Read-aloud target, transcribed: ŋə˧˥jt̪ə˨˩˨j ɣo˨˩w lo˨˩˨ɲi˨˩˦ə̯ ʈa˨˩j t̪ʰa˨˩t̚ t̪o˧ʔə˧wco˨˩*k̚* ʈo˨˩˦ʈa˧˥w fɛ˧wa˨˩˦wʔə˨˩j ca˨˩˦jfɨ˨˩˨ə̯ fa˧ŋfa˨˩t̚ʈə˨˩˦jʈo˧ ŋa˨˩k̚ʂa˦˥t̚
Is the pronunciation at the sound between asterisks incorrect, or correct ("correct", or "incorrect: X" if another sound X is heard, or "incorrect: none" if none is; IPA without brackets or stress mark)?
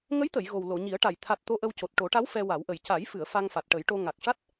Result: incorrect: t̚